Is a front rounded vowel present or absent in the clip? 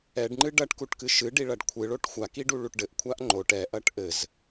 absent